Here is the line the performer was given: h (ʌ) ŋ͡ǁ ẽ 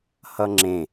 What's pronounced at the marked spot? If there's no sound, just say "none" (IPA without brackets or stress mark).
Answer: ʌ